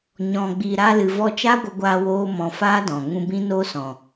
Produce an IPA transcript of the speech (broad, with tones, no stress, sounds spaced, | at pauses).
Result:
ɲ ɔ̃˨ ɡ͡b i˨ ɾ aː˧ l ɨ˨ v ɔ˧ t͡ʃ a˦ ɡʷ ə˧ ɡʷ aː˧ w oː˦ m ɔ̃˧ f aː˦ d ɔ̃˨ ŋ ũ˧ b ĩ˦ n oː˦ s ɔ̃˨